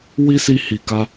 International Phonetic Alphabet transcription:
wi˦si˧hi˨ka˧

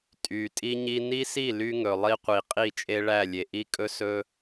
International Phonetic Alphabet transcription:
tʼy˨ tʼi˦ɲi˦ ni˦si˦˨ ly˦ŋɵ˨ lˠi˦qʷi˨ qʼi˦˨t͡ʃʼe˦ɭæ˦˨lʲe˨ ʔi˦kʼɵ˦sɵ˦

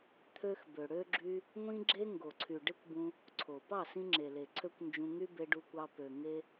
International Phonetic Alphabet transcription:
t̪ʰø˦xbø˨ ɽø˦ɡ͡ǁy˦ | ŋʷĩ˧ɡ͡ǁe˧ ŋɡo˨ǀʰy˨ ɖe˦kʷbũ˧ | ǀʰo˨ pɑ˦˨sĩ˧ŋ͡ǁe˨le˨ ǀʰø˦kʷnd͡ʒũ˧ŋy˦ be˧ɖu˧kʷɑ˧ pø˨ŋe˦

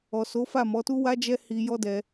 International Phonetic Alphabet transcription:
ɔ˨so˨˦fa˦˨ mɔ˨˦tu˦wa˦d͡ʒɛ˦ hi˧jɔ˦ dɛ˦

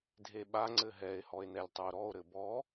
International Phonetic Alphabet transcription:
dʱeɓa ŋ͡ǀɘɦɛe̯ hɔe̯nɛlʲtˤuo̯ɾɔo̯ ɾɘbɔ

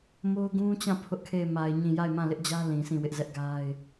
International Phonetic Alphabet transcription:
mo˦ʊ̯ɡũ˦t͡ɕã˦˨ pʰʊ˦ʔkʰe˦˨ɪ̯ma˨ɪ̯ ɲĩ˦˨ ja˦˨ɪ̯mã˦˨lɪ˦ʔd͡ʑä˦ lĩ˨sĩ˦˨wɪ˦ʔzɛ˦ʔ ɡa˦ɪ̯

